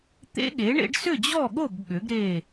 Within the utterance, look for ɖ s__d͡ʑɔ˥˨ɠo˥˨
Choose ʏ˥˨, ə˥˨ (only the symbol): ʏ˥˨